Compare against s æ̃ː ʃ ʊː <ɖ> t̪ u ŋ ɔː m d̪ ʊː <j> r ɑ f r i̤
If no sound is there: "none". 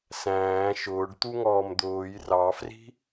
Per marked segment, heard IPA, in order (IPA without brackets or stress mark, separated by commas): ɖ, j